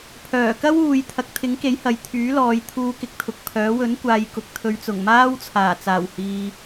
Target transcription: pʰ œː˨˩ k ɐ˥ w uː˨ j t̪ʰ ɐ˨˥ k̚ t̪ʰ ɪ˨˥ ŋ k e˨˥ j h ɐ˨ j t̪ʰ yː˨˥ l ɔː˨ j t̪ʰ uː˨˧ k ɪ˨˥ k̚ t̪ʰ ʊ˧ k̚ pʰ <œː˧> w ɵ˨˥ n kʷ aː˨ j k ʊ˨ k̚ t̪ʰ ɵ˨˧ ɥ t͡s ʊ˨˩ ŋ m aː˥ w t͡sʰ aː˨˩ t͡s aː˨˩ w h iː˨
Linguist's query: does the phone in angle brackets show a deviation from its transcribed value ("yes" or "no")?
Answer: yes